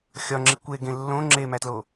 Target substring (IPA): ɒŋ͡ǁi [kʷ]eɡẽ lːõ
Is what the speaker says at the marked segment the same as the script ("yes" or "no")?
yes